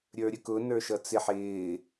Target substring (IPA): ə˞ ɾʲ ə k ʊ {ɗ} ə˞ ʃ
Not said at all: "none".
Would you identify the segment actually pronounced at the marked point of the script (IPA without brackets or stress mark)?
n